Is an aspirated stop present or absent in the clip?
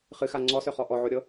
absent